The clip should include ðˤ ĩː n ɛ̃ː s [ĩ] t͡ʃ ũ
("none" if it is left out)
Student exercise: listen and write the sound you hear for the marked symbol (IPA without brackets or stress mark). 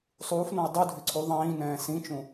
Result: ĩ